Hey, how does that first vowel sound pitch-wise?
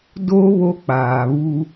high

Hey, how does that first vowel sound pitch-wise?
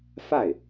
falling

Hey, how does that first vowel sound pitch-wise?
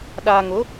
low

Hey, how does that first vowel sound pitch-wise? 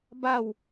falling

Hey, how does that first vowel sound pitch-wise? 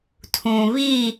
low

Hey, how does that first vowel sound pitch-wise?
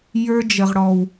high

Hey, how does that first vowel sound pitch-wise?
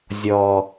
low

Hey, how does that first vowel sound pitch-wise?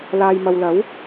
low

